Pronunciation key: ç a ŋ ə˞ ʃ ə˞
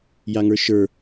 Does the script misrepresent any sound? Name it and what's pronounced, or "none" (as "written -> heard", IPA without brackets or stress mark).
ç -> j